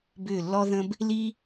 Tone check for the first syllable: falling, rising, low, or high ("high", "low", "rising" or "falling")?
falling